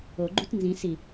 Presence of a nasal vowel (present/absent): present